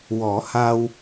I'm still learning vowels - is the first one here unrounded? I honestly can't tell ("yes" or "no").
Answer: no